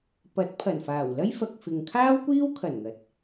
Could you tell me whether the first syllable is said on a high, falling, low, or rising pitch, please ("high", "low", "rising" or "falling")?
rising